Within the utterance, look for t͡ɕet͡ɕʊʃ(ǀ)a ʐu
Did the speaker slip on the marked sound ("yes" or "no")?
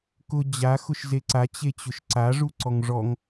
no